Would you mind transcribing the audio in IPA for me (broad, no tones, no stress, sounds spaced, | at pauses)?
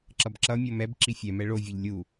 ǁ ʌ b ǁ ʌ mʲ o m ɛ b ǁ i fʲ ɛ m ɛ ɭ o vʲ e ʎ lʲ u